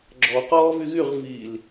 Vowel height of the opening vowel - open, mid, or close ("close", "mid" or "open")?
mid